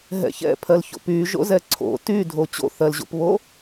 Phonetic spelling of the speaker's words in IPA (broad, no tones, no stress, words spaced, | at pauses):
ɦɛ̰çɛ̰pʰɜlço̰ py ʒo̰zɛǀʰo̰ tydʱo t͡ɕo̰θɜlʑo̰pβo